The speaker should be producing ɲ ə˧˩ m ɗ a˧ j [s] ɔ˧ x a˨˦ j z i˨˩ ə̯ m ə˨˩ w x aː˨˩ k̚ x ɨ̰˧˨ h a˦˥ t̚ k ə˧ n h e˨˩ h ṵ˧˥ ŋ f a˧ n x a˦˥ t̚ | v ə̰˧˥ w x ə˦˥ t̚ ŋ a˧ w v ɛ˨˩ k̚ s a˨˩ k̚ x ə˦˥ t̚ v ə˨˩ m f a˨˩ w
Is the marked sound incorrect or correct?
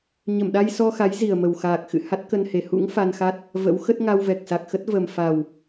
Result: correct